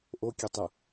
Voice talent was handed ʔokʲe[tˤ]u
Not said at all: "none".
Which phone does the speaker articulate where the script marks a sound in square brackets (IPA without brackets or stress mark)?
tˤ